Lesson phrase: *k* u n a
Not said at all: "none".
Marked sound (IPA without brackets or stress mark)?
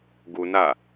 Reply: ɡ